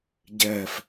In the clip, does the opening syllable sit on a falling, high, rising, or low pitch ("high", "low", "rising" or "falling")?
low